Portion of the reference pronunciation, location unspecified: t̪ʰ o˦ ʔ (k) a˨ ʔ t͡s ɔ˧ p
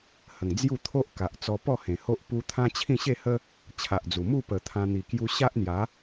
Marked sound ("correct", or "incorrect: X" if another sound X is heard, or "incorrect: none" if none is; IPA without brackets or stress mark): correct